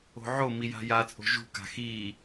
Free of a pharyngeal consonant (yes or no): no